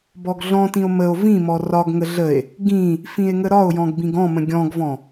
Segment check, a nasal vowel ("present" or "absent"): present